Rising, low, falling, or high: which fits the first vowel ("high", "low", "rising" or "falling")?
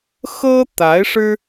high